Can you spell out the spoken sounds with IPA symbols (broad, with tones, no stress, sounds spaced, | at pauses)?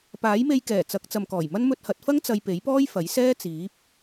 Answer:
p aː˨˥ j m e˧ j k ɛː˨˩ t͡s ɐ˨˥ k̚ t͡s ɐ˨ m k ɔː˨˩ j m ɐ˥ n m ɵ˧ t̚ h ɐ˨˥ t̚ f ɐ˥ ŋ t͡s ɐ˧ j p e˨˥ j p ɔː˥ j f ɐ˨˥ j s ɛː˥ t͡s iː˨˥ p̚